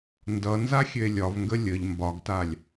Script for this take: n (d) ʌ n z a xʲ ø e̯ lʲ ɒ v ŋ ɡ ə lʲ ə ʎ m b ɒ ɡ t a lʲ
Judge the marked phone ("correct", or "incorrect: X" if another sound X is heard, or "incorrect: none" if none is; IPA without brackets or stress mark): correct